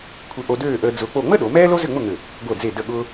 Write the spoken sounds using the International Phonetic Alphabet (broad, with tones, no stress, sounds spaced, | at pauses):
kʷʰ ɘ˧ ʔ o˧ d øː˥˧ ʔ əː˧ d͡z ʊː˧ k͡p o˥˧ ŋ͡m ə˥ ɗ o˩˧ m ɛː˥ l o˥ z ɘ˥˧ ŋ͡m ʊ˥˧ ŋ ø˧˩ | ɡʷ ɤ˧˩ d͡z e˧˩ d ə˧˩ ɠ ʊː˧